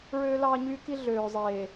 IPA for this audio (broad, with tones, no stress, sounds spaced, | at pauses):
ɹ øː˦ l ɑː˦ ɲ yː˦ k i˦ ɮ øː˨ zˤ eː˨